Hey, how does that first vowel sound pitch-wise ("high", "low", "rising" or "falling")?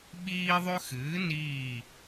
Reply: high